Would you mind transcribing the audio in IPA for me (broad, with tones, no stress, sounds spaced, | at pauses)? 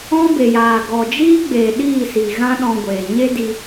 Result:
ɔ̃˦ b e˨ j aː˨ ɡ ɔ˨ d͡ʒ iː˦ ɡ͡b eː˨ ɗ iː˦˨ s i˨ ɣ ã˦ ɗ ɔ̃˧ ɡʷ eː˨ ɲ e˦ d i˧